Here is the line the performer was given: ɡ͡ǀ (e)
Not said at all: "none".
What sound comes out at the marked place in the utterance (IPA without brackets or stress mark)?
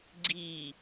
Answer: i